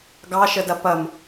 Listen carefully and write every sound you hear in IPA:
ɡ ɑ ʃ ə d ɐ p ɐ m

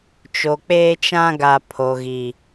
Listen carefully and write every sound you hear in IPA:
t͡ʃ o˨ k͡p eː˦ t͡ʃ ã˦ ɡ a˨ pʰ o˨ ɣ i˨

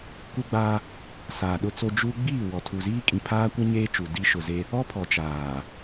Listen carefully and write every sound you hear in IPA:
k u˦ ɡ͡b aː˦ | s aː˨ ɗ ʊ˦ t͡s o˦ d͡ʒ u˦ ɡ͡b iː˦˨ w ɔ˨ tʰ u˨ z iː˦ kʼ ĩ˨ pʰ aː˦ kʷ a˦ ɲ eː˦ t͡ʃ u˨ d i˦ ʃ ʊ˨ z e˦ | ɔ˦ pʰ ɔ˨ t͡ʃ aː˨

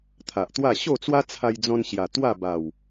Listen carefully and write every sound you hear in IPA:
t̪ʰ a˨ ʔ t̪ w a˥˧ ɕ o˥˧ t͡s w a˦ t͡sʰ a˧ j d͡z ɔ̃˧ n ɕ j a˨˩ t̪ w a˥˧ b a˨˩ w

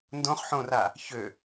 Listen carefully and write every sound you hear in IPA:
n d õ χ ħ õ r a | ç ø

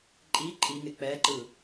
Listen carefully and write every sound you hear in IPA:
ǃʼ i ǃʼ i ŋ ɪ k͡p ɛ ǃ ɯ

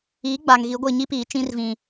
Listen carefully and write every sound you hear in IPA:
iː˨˦ ɡ͡b a˨ ŋ ɣ i˨˦ ɡʷ ɪ˦˨ ɲ i˦ p iː˨ t͡ʃ ĩ˦ r v ĩ˨

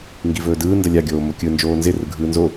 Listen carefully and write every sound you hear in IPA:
ŋ ɡ i v ɵː d ɯː n d ə lʲ a ɡʲ oː m o kʲ ɯ n d͡ʒ oː n z ɪ r ɯ ɡʱ ɯː n z o

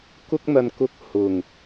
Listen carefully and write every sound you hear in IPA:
k ʊ˥ k̚ n̪ ɐ˧ n k ʊ˧ k̚ h ʊ˨˩ ŋ

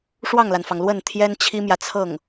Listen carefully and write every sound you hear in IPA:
ʂ w ɑ˥˩ ŋ l a˩ n f ɑ˩ ŋ l w ə˥˩ n t̪ʰ j ɛ˥ n t͡ɕʰ i˥ m j ä˨ t͡sʰ ɤ˥˩ ŋ

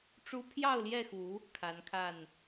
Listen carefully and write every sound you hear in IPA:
ʈ͡ʂ u˦ pʰ j ɑ˥˨ ʊ̯ l j ɛ˥˨ x u˨˦ | kʰ a˨˦ n kʰ a˥˨ n

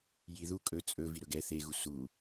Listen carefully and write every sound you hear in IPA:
j i ð u kʼ ɵ t͡sʼ ɵ v i ɾ ɵ ɡ ɛ θ e ɣ u s u

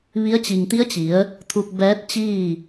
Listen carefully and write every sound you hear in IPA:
ʋ i˧˥ ə̯ t͡ɕ i˩ ŋ t̪ i˧˥ ə̯ t͡ɕ i˩˧ ə̯ | t̪ʰ u˧ k̚ b ɛː˧˥ t̚ t͡ɕ iː˥˨

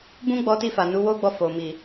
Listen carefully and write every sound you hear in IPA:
b ũ˦ ɡ͡b ɔ˧ t i˧ f a˨ n u˨˦ w o˦ ɡ͡b ɔ˧ f o˨ m i˨

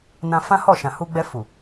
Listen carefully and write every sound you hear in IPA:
n ã˧ f ã˦ h ɔ˦˨ ʃ ã˨ h u˧ ɡ͡b ɛ˧ f u˨

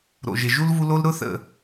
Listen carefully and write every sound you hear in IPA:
ɾ o̰˩ ʒ ɪ˩ ʒ u˥ l v u˦ l o˥ l ɾ ʊ˥ θ ə̰˨

